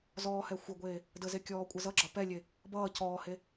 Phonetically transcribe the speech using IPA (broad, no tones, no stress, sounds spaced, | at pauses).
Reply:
z ɔː h ɛ xʷ ə ɡʷ eː | d ə z e kʲ ɔː kʷʼ ə z ʌ ɡ͡ǁ ʌ p ɛ lʲ e | b ʌː c ɔː h e